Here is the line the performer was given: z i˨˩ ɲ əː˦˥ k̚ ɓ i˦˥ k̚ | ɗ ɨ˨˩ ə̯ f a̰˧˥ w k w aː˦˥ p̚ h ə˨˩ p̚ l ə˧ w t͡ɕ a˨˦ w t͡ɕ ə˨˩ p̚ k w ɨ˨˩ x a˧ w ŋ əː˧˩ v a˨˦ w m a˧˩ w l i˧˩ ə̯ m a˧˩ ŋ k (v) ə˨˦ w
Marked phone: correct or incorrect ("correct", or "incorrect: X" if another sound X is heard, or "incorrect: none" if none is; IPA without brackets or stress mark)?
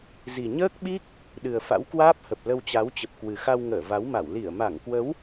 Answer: incorrect: w